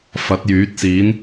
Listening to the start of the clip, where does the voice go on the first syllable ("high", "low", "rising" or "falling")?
rising